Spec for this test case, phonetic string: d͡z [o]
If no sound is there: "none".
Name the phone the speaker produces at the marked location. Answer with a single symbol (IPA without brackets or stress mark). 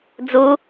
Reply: u